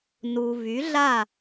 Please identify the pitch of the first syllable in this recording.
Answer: low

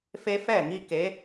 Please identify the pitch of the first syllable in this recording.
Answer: high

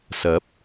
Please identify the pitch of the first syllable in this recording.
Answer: rising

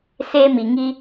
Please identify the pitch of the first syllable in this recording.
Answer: high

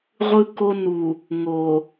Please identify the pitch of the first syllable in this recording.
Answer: high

